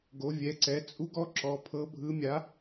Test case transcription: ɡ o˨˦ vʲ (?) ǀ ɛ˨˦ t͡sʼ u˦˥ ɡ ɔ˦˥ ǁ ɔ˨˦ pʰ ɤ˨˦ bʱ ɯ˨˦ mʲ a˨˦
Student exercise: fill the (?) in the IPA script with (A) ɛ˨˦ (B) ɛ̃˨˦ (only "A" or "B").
A